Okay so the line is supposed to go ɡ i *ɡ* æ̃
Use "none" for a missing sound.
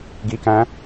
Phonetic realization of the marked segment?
k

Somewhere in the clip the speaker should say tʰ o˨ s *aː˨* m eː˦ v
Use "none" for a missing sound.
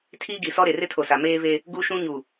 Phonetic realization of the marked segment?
a˨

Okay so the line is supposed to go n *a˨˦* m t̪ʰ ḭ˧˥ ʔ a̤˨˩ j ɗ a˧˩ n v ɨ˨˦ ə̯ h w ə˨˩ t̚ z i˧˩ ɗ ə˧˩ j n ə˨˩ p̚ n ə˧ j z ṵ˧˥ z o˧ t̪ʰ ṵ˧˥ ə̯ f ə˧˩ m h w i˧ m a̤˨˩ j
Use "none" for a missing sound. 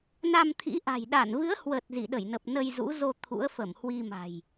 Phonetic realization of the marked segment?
a˧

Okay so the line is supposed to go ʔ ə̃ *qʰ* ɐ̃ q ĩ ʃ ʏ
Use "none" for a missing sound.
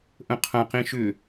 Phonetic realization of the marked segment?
qʰ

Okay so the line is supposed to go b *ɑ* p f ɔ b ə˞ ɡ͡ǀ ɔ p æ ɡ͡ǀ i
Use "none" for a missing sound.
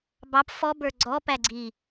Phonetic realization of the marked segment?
ɑ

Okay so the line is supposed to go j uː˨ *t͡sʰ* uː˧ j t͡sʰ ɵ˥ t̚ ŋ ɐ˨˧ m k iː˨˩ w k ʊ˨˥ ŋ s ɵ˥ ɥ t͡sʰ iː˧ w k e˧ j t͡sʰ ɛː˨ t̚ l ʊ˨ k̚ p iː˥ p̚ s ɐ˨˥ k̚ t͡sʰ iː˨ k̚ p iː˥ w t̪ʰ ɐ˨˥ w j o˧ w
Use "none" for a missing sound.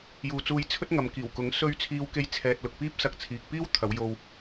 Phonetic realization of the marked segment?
t͡s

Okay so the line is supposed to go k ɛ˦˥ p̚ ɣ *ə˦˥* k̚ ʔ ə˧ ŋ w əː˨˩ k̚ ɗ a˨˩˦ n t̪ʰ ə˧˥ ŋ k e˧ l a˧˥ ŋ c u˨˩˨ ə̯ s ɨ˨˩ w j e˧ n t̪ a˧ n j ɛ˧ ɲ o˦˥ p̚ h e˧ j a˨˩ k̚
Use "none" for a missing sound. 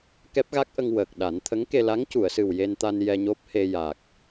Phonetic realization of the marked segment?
a˦˥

